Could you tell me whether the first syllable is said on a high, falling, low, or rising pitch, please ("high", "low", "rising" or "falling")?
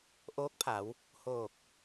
rising